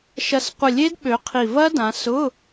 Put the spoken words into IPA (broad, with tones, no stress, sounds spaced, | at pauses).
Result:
ʃ ɐ˧˩ s qʷ ɪ˧˩ lʲ e˦˥ d ɓ ø˨˦ qʰ i˧˩ v ɐ˦˥ d ã˨˦ s ʊ˧˥˧